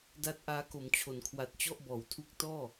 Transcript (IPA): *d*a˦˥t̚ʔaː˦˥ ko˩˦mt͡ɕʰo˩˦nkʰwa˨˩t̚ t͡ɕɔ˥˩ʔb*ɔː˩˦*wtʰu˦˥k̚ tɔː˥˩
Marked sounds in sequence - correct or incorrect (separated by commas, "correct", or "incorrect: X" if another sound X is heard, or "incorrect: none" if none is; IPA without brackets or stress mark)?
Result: correct, incorrect: ɔː˨˩